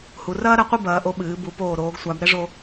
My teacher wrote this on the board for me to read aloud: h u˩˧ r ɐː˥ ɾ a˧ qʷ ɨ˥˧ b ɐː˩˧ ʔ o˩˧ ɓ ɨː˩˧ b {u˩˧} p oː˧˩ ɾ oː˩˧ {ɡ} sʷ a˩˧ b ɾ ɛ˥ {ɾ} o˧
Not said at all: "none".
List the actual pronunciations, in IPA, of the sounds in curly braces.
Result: u˩˧, ɡ, ʐ

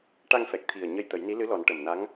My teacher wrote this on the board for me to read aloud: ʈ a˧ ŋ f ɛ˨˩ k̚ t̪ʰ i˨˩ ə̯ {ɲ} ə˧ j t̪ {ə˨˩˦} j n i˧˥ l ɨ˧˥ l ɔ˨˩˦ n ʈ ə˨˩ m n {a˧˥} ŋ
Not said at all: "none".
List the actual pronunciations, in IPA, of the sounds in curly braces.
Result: ɲ, ə˨˩˦, a˧˥

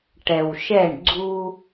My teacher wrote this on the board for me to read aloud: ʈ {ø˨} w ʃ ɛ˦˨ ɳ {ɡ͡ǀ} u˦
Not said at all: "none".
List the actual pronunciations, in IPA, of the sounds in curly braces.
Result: ɛ˨, ɡ͡ǀ

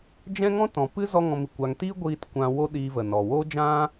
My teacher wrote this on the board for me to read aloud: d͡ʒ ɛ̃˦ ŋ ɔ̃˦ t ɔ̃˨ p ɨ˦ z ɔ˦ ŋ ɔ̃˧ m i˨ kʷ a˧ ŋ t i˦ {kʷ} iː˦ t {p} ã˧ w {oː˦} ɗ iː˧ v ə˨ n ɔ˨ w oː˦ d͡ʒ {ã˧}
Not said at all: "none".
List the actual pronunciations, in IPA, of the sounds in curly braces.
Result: ɡʷ, kʷ, o˦, ã˦

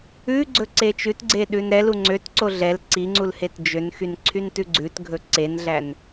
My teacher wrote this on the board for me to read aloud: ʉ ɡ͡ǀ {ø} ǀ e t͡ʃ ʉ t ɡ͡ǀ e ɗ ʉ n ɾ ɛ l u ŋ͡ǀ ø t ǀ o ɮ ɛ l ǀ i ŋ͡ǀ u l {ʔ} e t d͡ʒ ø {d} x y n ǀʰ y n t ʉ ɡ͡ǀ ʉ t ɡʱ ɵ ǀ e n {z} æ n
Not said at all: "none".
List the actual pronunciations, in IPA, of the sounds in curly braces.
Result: ɵ, h, n, ɮ

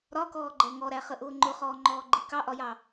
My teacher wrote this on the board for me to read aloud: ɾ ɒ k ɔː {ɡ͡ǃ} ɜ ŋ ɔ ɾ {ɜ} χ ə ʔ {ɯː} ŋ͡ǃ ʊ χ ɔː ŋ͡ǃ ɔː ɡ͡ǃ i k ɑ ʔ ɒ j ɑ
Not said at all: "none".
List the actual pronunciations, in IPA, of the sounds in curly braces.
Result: ɡ͡ǃ, æ, ʊː

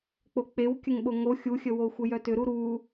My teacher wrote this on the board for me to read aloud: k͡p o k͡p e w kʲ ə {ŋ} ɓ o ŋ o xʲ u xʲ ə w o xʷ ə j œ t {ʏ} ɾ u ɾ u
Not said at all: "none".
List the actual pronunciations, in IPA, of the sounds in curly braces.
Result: ŋ, ʏ

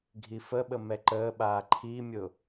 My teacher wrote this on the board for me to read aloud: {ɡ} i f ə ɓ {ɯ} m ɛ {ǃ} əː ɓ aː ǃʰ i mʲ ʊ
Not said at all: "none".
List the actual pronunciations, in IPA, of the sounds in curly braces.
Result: ɡʱ, ə, ǃ

